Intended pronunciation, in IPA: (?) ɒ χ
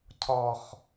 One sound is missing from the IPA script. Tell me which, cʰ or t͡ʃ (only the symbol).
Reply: cʰ